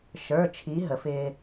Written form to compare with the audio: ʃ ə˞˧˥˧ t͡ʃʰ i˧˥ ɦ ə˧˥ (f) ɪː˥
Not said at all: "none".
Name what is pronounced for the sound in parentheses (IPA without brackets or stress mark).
f